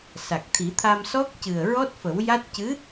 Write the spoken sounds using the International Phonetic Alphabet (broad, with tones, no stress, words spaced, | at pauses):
sa˨˩k̚t̪ʰi˨˩˦t̪ʰa˧msɔ˦˥k̚ cɨ˨˩ə̯ ɹɔ˦˥t̚fə˨˩˦wja˦˥t̚ cɨ˧˥